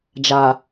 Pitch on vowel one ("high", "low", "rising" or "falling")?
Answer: low